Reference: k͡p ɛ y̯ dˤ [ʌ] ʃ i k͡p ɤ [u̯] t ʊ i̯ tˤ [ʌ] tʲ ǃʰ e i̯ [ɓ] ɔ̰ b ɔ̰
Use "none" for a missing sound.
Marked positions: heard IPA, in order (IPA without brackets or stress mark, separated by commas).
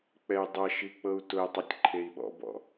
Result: ʌ, u̯, ʌ, ɓ